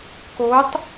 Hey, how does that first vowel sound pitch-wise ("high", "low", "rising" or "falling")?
rising